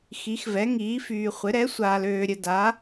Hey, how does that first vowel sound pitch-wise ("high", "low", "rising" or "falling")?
rising